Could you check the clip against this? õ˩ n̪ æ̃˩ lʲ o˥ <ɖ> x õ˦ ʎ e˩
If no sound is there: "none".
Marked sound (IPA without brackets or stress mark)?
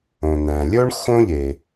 ɳ